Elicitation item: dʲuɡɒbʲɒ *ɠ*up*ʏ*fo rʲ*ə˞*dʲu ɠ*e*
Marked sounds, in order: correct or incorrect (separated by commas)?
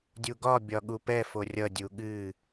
correct, incorrect, incorrect, incorrect